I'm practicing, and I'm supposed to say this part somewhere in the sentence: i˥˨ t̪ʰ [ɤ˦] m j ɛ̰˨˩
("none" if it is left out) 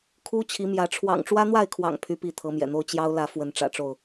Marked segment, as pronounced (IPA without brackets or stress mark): ɤ˨˦